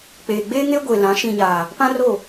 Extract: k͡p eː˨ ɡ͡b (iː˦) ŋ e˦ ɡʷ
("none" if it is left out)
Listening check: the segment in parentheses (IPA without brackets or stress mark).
eː˦